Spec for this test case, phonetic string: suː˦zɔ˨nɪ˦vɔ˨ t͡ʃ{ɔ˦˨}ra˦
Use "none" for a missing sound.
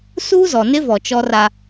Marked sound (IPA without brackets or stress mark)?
ɔ˦